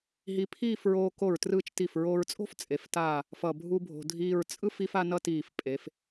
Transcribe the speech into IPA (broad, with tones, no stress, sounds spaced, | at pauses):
ɦ i˧ pʰ iː˥˧ f ɹ oː˧ k o˧˩ ɹ t r ɯː˧ t͡ʃ t i˧˩ f ɹ oː˧ ɹ t͡sʼ o̤˥ f t͡sʼ e˩˧ f t aː˧˩ | f ʌ˧˩ bʱ u˥ bʱ o̤˧ dʱ iː˥˧ ɹ t͡sʼ ɯ˥ f i˥ f a˥ n ʌ˥ t iː˧˩ f pʼ e˩˧ f